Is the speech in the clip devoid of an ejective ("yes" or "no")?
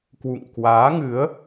yes